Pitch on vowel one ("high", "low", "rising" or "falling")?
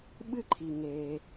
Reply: high